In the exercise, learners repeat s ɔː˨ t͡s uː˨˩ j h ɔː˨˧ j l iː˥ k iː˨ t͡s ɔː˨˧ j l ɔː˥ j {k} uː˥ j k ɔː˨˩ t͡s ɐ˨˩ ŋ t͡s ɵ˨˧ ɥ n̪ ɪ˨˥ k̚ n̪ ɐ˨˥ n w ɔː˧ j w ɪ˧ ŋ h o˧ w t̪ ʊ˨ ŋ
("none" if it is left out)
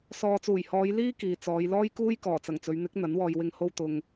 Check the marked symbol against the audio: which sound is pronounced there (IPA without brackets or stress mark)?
k